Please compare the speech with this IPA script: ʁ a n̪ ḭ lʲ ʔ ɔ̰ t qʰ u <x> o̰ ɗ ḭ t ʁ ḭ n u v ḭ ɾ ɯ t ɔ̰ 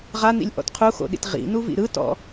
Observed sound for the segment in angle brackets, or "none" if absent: x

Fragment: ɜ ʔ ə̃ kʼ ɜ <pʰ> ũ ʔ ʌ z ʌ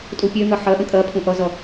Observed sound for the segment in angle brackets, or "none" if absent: pʰ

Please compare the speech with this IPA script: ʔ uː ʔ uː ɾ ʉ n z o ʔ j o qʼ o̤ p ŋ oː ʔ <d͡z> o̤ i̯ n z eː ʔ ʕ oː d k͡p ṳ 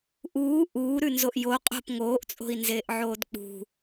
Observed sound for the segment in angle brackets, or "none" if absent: t͡sʼ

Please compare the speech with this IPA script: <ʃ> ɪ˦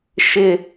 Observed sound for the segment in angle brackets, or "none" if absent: ʃ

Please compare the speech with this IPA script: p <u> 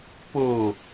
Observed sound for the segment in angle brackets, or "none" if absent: o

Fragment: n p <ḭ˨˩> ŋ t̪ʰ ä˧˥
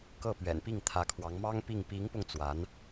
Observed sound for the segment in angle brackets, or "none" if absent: i˥˩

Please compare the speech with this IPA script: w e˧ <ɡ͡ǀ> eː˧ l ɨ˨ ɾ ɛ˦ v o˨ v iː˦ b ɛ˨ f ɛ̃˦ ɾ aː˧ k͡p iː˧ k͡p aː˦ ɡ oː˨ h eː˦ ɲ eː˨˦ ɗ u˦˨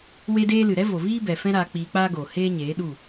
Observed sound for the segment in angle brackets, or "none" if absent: d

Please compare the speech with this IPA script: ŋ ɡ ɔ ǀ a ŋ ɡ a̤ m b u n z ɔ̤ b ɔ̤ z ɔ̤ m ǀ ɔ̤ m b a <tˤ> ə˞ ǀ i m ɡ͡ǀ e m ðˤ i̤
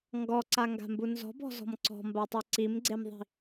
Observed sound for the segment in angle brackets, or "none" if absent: tˤ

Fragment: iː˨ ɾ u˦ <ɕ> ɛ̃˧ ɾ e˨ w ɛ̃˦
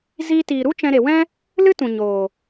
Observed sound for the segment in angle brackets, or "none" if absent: t͡ʃ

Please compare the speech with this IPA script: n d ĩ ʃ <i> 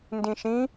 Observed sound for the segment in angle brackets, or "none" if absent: ĩ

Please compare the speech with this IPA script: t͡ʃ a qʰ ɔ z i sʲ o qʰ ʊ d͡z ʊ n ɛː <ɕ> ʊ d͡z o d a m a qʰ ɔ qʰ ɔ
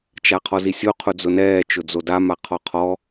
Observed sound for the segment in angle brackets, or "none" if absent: t͡ʃ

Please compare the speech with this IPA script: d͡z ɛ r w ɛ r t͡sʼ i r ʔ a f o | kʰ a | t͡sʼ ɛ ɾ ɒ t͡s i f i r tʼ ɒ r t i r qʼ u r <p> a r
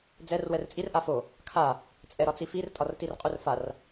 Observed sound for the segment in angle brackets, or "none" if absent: f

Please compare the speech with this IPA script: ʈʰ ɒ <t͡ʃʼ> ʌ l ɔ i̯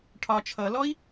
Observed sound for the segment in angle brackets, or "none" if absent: t͡ʃʰ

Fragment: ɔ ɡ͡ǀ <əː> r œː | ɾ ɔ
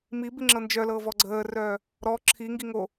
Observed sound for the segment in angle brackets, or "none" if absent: əː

